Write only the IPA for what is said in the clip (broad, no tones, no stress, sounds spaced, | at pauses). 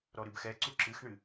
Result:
ɾ ɔ ɾ ɨ b x ɛ ǀ u ǁ ɨ x ɳ ɨ